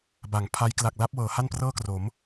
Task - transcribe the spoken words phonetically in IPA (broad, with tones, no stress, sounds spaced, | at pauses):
b a˩˦ ŋ pʰ a˦˥ j k l a˨˩ k̚ l a˦˥ p̚ w ɤː˩˦ h a˥˩ n p r ɤː˥˩ k r o˩˦ m